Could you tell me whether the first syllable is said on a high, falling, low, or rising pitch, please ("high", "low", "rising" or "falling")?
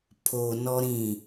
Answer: low